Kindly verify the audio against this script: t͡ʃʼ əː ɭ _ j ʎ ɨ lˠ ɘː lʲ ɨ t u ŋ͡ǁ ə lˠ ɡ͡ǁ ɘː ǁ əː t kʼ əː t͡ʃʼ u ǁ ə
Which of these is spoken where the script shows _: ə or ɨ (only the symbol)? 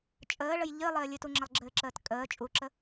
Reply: ə